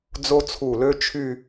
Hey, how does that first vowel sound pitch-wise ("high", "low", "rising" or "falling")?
high